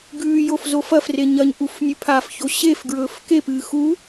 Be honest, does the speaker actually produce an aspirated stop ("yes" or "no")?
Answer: yes